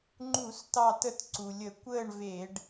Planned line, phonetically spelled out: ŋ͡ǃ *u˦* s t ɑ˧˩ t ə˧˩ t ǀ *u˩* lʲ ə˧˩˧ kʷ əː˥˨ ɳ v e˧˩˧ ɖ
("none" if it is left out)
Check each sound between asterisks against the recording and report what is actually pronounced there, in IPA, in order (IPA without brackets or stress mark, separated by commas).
u˧˩˧, u˩